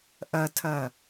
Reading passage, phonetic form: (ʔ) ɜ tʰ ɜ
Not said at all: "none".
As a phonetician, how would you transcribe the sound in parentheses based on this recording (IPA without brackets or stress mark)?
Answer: ʔ